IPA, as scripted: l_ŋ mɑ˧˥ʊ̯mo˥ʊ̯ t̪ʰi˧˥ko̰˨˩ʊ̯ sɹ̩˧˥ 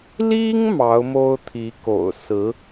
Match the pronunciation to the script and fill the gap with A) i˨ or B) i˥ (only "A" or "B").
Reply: B